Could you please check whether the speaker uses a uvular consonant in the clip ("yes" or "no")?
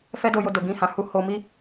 no